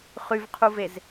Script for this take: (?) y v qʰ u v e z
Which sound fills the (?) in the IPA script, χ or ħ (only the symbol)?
χ